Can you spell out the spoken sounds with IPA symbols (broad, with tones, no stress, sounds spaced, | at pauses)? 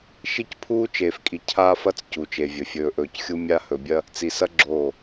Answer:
ʃ i˦ c pʰ uː˦ t͡ʃ eː˨ f kʼ i˨ cʰ aː˦ f ɐ˦ t͡s c u˨ t͡ʃ e˨ vʲ ɵ˨ fʲ ɵː˨ ʔ ɵː˨ c xʲ u˦ mʲ a˦ h ɵ˨ bʲ ɐ˦ | t͡s i˨ s ɐ˦ ɡ͡ǁ oː˦˨